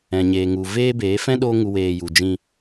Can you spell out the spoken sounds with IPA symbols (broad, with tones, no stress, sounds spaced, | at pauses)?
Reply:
ɛ̃˨ ɲ eː˨ ŋ u˨ v eː˦ b eː˨˦ f ɛ̃˦ ɗ oː˦ ŋ u˧ w eː˧ j u˨ d͡ʒ ĩ˧